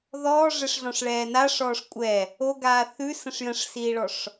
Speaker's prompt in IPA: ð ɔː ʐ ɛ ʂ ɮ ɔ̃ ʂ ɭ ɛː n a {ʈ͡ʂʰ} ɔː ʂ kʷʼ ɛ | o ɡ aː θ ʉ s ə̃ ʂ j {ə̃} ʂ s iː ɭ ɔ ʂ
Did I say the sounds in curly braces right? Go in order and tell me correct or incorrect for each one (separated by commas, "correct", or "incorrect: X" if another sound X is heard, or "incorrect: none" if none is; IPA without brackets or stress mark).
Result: incorrect: ʂ, correct